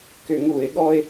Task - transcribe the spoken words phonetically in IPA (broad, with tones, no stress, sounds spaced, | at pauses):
k ʏ˧˩˧ ŋ u˧˩˧ ɪ̯ ɠ ɔ˥ ɪ̯